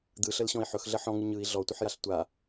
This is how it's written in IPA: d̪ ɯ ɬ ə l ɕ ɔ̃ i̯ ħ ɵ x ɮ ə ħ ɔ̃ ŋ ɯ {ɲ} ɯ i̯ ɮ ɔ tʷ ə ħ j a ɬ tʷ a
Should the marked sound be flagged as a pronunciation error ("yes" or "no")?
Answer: no